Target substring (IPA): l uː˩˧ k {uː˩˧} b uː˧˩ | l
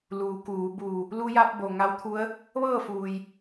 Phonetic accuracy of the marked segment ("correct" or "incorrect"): correct